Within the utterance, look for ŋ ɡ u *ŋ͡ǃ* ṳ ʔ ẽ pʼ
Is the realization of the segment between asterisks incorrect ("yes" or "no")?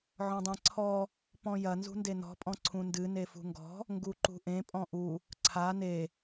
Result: yes